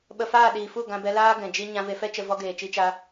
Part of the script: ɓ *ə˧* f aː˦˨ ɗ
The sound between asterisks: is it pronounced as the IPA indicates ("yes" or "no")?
yes